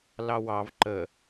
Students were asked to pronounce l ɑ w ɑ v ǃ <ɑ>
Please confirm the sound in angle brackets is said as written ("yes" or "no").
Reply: no